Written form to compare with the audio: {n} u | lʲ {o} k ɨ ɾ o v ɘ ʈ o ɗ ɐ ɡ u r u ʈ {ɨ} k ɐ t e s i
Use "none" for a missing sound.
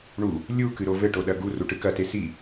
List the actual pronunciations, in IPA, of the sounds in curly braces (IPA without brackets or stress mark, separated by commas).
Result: ɳ, u, ɨ